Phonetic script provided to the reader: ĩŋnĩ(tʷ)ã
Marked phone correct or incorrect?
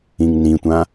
correct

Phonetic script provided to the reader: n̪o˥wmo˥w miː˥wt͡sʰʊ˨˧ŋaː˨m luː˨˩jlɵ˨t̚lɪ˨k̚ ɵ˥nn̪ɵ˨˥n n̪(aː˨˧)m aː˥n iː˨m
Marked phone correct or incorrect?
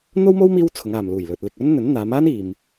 correct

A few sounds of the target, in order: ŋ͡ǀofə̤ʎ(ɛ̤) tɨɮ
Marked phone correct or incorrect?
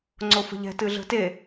correct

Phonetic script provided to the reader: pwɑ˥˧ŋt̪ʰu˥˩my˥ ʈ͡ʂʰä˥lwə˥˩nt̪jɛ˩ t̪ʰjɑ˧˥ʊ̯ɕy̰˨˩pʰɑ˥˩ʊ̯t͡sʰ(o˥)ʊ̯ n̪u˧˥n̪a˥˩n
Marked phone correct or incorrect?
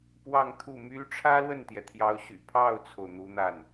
incorrect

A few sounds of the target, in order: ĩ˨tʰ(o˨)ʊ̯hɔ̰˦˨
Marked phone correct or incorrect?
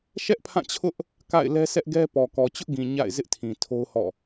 incorrect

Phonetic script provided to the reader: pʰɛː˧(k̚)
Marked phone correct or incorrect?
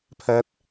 incorrect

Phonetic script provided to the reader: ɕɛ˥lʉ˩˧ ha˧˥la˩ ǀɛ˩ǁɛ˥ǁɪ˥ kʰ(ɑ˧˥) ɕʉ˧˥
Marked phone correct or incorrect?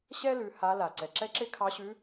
correct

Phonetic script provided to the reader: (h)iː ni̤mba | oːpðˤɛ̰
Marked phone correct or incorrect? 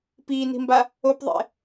incorrect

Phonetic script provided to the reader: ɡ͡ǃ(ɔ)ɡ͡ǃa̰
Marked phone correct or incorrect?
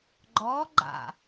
correct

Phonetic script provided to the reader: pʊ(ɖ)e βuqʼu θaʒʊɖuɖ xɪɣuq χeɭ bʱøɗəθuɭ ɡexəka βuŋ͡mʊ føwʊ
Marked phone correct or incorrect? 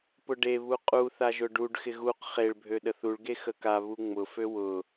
correct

